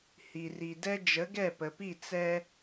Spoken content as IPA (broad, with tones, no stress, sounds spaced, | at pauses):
h i˩ r i˩ d ɛ˥ d͡ʒ ə˩˥ ɡ ɛ˥˩ p ə˩ p i˥˩ t͡s ɛ˥